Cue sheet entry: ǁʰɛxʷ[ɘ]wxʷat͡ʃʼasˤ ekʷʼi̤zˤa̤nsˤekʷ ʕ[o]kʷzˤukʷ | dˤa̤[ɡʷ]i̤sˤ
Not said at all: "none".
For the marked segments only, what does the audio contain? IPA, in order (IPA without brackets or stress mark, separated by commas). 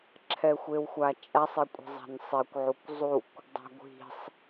e, u, ɡʷ